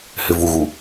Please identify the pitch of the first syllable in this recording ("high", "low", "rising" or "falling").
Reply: low